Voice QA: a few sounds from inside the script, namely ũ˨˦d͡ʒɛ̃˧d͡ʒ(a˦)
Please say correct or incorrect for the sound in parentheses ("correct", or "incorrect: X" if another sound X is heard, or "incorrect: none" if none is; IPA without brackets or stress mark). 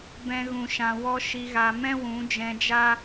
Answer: correct